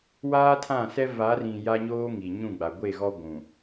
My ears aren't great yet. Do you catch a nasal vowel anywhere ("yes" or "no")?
yes